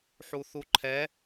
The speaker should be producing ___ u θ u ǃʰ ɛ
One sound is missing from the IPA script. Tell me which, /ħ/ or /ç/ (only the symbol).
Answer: ħ